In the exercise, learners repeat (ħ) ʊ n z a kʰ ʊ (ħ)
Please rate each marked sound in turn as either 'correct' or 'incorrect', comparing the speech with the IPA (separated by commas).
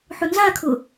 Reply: correct, incorrect